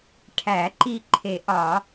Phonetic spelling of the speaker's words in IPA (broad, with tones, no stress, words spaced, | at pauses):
ʈʰæ˨˩˦ ǃi˧˩ǃʰe˨˩˦ʔɒ˨˩˦